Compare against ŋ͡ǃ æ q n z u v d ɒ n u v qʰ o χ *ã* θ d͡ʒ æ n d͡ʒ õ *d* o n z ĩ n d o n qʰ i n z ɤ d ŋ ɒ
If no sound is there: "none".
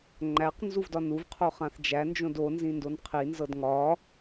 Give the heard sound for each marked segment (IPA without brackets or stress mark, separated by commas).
ã, d